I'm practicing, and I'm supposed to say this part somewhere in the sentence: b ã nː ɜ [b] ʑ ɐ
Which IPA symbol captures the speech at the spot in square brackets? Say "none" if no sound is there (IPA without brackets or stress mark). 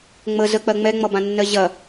none